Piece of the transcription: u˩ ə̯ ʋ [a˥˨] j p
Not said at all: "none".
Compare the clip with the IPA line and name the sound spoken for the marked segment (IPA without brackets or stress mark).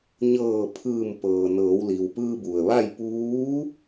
a˥˨